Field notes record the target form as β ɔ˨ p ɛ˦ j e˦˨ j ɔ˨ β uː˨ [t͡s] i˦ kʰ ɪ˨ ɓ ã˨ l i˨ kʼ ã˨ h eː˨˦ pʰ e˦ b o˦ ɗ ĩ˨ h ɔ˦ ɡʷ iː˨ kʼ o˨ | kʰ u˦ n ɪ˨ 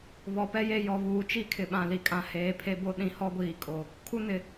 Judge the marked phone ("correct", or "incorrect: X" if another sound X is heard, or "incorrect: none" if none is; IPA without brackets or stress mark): incorrect: t͡ʃ